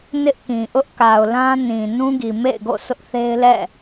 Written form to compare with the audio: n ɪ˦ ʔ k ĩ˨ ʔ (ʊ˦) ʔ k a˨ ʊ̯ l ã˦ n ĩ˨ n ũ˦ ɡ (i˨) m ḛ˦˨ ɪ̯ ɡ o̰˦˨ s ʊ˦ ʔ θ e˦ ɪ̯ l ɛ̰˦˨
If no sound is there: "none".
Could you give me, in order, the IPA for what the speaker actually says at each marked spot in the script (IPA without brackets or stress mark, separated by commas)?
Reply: ʊ˦, i˨